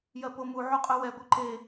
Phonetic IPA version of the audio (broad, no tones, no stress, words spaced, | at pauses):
jɜpomu ʕuqʼœwɛ ɡʷœǃe